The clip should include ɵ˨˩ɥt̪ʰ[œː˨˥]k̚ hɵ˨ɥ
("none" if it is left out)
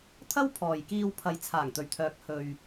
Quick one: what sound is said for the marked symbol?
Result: œː˨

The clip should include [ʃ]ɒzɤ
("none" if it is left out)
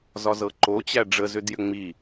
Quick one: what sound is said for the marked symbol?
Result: z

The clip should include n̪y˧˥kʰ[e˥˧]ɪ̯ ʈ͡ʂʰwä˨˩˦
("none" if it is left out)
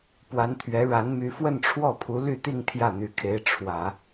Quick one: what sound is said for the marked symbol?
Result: e˧˥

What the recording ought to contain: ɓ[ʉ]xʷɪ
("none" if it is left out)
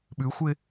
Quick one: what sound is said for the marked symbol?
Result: ʉ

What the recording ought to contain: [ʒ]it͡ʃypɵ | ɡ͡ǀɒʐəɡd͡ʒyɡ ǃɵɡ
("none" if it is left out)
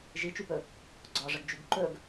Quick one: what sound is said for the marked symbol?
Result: ʒ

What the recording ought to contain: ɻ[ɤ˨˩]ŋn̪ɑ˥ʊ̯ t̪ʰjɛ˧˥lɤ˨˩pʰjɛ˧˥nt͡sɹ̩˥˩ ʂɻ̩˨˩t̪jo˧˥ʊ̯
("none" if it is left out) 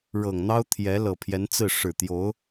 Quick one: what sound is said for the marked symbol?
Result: ɤ˨˩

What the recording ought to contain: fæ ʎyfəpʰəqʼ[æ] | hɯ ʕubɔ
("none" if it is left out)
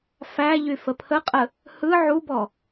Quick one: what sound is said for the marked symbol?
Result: ə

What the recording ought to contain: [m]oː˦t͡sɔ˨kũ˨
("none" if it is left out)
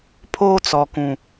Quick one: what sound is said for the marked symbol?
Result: pʰ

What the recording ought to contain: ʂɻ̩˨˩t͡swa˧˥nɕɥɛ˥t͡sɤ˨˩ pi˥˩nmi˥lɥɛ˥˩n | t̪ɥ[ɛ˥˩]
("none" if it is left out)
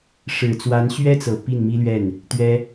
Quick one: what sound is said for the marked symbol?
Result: ɛ˥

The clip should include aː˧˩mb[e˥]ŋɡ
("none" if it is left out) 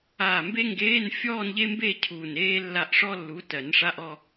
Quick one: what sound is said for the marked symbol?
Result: e˥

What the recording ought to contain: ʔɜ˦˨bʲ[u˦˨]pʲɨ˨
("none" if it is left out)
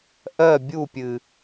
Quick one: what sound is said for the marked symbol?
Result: u˦˨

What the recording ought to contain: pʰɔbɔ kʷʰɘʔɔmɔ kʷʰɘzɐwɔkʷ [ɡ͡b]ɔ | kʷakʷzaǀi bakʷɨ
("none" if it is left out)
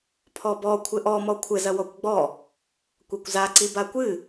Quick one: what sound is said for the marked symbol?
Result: ɡ͡b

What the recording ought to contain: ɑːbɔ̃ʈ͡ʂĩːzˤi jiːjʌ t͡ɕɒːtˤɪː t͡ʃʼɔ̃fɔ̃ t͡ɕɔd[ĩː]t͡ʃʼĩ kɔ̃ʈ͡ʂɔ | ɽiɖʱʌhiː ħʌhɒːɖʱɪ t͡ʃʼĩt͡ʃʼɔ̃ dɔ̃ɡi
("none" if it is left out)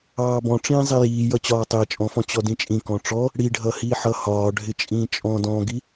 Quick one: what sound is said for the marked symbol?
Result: ĩ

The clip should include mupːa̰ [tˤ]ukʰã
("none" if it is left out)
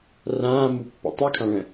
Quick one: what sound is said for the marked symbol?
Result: tˤ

